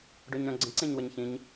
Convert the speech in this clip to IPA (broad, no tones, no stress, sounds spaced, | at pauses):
ɖ ø ɲ ɾ œ̃ ɡ͡ǀ ə̃ ǀ ẽ ɲ w ə ɲ ç ĩ ɲ